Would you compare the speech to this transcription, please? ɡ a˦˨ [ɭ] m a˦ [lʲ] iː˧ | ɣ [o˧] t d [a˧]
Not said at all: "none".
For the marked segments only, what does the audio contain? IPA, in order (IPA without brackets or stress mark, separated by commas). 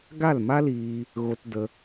l, l, o˧, ə˧